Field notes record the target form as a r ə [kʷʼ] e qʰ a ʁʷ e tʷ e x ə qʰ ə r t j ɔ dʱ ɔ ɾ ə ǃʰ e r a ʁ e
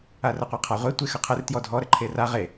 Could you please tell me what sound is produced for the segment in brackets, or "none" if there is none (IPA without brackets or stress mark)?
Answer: qʷ